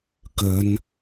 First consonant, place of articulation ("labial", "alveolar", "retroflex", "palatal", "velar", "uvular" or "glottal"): velar